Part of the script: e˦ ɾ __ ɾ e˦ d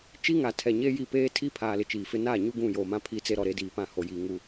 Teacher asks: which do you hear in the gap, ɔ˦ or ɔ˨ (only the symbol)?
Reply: ɔ˨